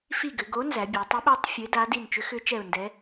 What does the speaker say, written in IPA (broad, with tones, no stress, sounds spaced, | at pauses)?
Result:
f i˦˨ ɡ ʏ˩˧ ɡ o˧˥ n z æ˩˧ bʲ æ˩˧ tˤ ʏ˧˥ ɓ æ˧˥ tˤ fʲ ə˧˥ ɪ̯ d a˧˥ d i˦˨ n t͡ʃ ʏ˧˥ x ʏ˧˥ t͡ʃ ɛ˦˨ ʊ̯ n d ɛ˧˥